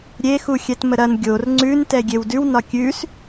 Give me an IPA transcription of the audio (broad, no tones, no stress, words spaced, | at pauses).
ɾʲexu xʲɛtməɾɐn ɡʲor ŋ͡ǀʉntɛ ɡʲewdʉwnɒ kʲʉs